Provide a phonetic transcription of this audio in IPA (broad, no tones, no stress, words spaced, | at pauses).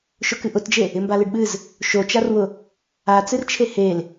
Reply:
ʃʊkɨʔʊtd͡ʒe | ɪmbalɨɖɓɨz | ʃot͡ʃarwʊ | at͡sɨrt͡ʃʰe hel